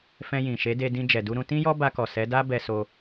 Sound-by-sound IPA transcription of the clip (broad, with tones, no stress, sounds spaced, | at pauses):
f ɛ̃˧ j ĩ˨ ʃ e˨˦ d e˧ d ĩ˧ d͡ʒ ɛ˨ d u˧ ɾ ũ˧ t ĩ˦ j ɔ˦ b a˧ k ɔ˨ s ɛ˨˦ d a˦ b ɛ˧ s o˧